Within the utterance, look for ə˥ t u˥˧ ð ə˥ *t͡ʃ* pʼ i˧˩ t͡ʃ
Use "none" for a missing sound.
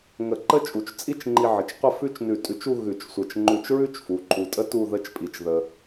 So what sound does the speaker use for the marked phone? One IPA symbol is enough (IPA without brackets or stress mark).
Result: t͡ʃ